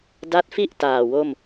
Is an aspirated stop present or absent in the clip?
absent